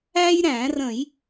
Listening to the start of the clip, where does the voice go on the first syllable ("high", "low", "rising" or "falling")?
high